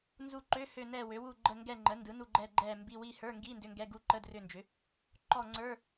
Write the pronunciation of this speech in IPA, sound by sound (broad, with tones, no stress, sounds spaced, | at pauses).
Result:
n z u˦˨ ǃ ø˧˥˧ h ø˦˨ n ɛ˦˨ w ø˩˥ w u˦˨ ɡ͡ǃ ə˦˨ ŋ ɡ ɛ˦˨ ŋ͡ǃ ə˩˥ n d ɯ˩˥ n u˦˨ ɡ͡ǃ ɛ˦˨ ɡ͡ǃ ɛ˦˨ m b i˧˥˧ w i˦˨ h ə˞˧˥˧ ŋ ɡ i˧˥˧ n d ʏ˧˥˧ ŋ ɡ ɛ˧˥˧ ɡ u˧˥˧ ǃ ə˧˥˧ d r ʏ˦˨ n d͡ʒ ʏ˩˥ | ǃ ɔ˦˨ ŋ͡ǀ ə˞˧˥˧